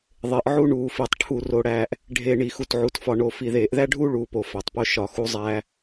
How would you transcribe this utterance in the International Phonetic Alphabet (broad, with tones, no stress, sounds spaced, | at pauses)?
ðˤ e˨ ʔ ʕ u˦ ɳ uː˨ f i˨ tˤ ʈʰ u˨ r o˨ ɽ æː˨ ʔ | ɖʱ e˨ ɳ i˨ x u˨ t ʕ u˨ t f ɒ˨ ɳ o˨ f i˨ ð eː˨ ʔ ð æ˦ ɖʱ uː˦ ɭ uː˨ p o˨ f æ˨ tˤ p o˦ ʃ ɒ˨ x u˦ zˤ æː˦